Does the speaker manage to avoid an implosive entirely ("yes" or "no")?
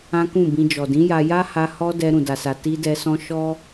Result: yes